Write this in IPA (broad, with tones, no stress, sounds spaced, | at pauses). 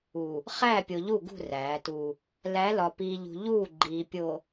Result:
u˨ | χ æː˦˨ pʲ o˨ ʎ u˦˨ ɡ ṳ˦˨ r æː˨˦ t u˦ | l æ˨˦ l ɒ˨ p iː˨ ʎ ṳ˨ ʎ uː˦˨ ɡ͡ǃ iː˨ pʲ o˨